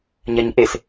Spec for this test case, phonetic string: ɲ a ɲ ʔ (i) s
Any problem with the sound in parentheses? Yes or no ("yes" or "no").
yes